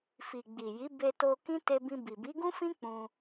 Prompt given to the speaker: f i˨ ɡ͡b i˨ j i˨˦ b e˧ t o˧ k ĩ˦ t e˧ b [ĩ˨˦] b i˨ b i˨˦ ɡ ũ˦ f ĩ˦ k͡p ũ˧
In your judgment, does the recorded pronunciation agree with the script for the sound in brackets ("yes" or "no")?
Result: no